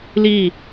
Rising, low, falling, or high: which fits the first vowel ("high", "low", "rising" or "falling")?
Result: falling